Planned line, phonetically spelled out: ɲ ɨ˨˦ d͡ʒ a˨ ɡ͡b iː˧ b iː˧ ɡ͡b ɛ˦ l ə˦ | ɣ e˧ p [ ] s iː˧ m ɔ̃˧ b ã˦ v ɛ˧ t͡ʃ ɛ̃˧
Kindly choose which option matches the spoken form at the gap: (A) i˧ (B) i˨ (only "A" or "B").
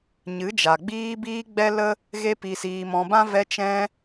B